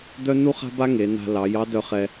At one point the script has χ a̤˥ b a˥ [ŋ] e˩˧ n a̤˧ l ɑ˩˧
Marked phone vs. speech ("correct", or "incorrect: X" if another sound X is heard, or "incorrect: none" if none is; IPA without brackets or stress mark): correct